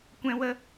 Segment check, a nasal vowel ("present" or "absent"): present